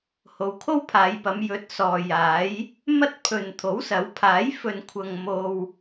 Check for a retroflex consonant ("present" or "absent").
absent